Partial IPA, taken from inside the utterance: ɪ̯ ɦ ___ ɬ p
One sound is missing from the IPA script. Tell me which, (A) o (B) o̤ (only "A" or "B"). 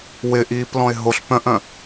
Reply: A